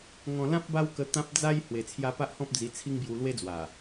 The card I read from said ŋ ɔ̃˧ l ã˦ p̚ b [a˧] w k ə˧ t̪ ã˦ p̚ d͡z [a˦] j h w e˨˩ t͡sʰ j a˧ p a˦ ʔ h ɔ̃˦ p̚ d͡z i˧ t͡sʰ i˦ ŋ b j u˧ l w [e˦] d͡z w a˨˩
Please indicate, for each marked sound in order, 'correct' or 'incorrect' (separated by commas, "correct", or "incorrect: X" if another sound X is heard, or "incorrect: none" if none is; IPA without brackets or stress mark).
incorrect: a˦, correct, correct